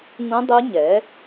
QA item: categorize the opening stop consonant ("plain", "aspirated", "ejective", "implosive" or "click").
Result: plain